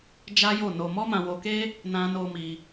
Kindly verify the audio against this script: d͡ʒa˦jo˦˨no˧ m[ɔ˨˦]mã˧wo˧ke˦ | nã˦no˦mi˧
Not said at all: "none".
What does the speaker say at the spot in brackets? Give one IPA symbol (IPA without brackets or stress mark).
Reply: ɔ˦